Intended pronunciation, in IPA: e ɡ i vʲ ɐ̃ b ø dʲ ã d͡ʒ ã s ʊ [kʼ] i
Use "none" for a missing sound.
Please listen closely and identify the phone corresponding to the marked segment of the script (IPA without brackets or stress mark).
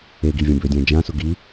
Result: ɡ